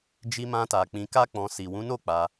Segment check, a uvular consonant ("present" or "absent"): absent